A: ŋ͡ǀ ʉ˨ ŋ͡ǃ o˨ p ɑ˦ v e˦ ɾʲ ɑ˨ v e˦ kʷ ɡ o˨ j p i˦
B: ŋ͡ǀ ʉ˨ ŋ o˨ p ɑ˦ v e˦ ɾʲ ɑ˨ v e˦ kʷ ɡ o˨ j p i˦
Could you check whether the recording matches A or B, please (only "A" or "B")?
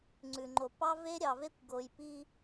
A